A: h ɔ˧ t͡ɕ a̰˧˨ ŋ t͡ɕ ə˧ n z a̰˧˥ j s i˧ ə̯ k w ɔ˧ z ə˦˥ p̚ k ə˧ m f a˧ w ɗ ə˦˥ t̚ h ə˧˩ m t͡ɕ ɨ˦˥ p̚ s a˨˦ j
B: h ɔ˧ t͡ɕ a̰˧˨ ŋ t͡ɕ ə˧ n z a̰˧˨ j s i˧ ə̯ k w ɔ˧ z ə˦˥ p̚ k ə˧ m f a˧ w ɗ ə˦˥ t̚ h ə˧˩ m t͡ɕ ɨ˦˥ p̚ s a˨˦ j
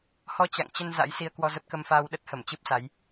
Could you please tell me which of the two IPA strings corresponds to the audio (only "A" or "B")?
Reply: A